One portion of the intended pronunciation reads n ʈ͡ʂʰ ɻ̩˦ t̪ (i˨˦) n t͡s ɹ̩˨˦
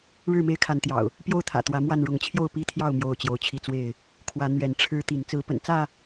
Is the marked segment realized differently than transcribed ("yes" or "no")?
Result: no